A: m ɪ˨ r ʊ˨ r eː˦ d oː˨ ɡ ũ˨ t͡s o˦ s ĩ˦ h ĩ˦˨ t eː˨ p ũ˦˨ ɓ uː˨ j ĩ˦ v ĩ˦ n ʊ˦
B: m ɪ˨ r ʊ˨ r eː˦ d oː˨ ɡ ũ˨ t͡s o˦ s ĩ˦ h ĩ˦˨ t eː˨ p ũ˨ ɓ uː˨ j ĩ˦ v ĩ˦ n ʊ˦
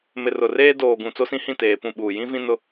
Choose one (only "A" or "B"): A